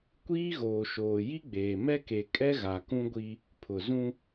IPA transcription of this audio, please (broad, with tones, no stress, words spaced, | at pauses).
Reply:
kʷiː˦ɣoː˨ʃoː˨ ji˦ɡ͡beː˨ mɛ˦ke˨kʼɛ˦ ɣa˨kũ˦ɡʷi˦ | pʰʊ˨zũ˦